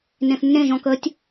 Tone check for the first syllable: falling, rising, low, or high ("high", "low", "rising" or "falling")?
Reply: low